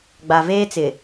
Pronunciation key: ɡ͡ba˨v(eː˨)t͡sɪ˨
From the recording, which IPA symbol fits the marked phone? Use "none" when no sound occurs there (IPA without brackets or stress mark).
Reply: eː˦